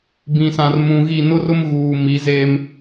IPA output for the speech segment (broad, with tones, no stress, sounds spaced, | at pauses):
b ĩ˨ s ã˨ r m ũ˨ ɣ i˦˨ n ʊ˦ r ʊ˦ m ɣ uː˨ m i˨˦ z eː˦ m